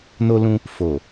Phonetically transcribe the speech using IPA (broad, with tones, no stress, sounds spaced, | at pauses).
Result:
n o˧ l ũ˧ | f o˨